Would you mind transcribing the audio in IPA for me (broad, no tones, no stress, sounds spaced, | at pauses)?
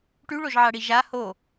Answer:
ʈ y ɭ o ʒ ʕ a ɽ i ʒ a h o